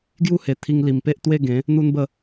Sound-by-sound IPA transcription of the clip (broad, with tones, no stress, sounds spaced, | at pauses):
ɡ j u˦ h e˨˩ t̪ʰ i˧ ŋ l i˨˩ m p e˦ ʔ t̪ w e˥˧ ɡ ẽ˨˦ | n̪ u˦ n b ə˥˧